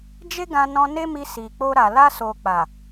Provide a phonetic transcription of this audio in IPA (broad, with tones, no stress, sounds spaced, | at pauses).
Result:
d͡ʒ e˦ ɡ ã˧ n ɔ̃˧ n e˦ m i˧ s i˨ k͡p o˧ ɾ a˨ l a˧ s o˨ k͡p a˨